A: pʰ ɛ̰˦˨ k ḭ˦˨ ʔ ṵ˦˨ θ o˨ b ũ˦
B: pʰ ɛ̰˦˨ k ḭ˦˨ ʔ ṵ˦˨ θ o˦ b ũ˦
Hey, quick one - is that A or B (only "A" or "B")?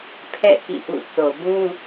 A